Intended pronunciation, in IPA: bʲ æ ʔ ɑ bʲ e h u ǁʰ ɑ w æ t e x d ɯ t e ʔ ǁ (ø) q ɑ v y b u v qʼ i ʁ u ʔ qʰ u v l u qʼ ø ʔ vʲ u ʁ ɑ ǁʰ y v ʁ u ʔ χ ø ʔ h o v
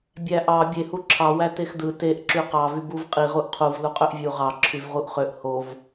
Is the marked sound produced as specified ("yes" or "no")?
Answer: no